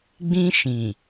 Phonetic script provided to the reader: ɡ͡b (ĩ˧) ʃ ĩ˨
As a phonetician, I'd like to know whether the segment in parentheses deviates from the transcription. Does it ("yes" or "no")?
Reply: no